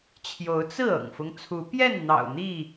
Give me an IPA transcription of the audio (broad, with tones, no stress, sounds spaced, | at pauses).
t͡ɕʰ j o˨˦ ʊ̯ t͡s ɹ̩˥˨ ɤ̰˨˩ ŋ f ʊ˦ ŋ t͡sʰ u˨˦ p j ɛ˥˨ n n̪ ɑ̰˨˩ ʊ̯ n̪ i˥˨